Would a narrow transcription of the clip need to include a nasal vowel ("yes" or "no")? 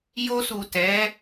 no